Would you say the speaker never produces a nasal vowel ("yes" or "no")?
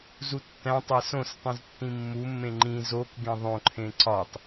no